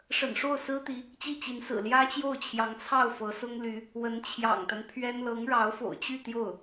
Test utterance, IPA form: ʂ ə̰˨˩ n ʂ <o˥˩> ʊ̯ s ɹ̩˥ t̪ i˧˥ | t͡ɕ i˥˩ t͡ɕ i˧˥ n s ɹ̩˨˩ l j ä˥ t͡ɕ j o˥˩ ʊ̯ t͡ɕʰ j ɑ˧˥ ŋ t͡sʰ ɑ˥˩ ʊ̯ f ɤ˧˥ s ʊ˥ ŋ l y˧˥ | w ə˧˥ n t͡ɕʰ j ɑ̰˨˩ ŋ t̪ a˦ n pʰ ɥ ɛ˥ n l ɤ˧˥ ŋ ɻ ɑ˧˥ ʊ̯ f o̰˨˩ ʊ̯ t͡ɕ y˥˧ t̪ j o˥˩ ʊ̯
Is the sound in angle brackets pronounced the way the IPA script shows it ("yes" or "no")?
yes